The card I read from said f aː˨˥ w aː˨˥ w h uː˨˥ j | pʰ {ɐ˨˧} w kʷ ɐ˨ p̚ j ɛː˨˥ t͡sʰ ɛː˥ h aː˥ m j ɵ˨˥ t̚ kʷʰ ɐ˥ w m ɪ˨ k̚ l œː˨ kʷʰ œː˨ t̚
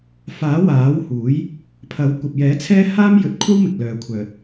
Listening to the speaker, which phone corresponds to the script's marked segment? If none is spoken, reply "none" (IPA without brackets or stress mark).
ɐ˨˥